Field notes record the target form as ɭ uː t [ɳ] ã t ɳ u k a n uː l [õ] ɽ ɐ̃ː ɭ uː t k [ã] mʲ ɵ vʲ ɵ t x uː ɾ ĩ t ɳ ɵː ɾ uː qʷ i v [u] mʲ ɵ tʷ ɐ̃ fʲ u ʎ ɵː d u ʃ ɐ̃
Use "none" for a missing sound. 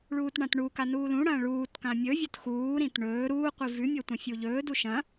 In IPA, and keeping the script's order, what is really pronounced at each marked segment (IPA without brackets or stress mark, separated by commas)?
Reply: ɳ, ũ, ã, ʉ